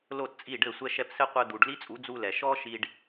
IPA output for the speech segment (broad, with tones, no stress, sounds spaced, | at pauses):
l o˦˨ t t͡sʼ i˦˨ ɖ ɘ˦˨ sʷ ɛ˦ ʃ ɛ˧ p s ɘ˦ qʷ ɘ˧ d̪ u˨ ɖ l i˦ t͡sʼ u˨˦ d͡z u˧ l ɛ˨ ʃ ɔ˦ ʃ i˧ ɖ